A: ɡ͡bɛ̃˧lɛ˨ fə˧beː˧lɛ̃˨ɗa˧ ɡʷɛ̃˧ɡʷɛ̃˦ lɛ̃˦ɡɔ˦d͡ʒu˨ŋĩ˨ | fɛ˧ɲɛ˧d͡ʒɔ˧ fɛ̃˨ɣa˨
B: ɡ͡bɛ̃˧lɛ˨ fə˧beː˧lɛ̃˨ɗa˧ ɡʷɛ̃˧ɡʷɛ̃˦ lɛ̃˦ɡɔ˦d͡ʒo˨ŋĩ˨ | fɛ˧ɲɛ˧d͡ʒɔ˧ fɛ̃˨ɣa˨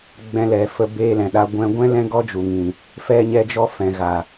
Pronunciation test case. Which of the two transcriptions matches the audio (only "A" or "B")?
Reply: A